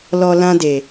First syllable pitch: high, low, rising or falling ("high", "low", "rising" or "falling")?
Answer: low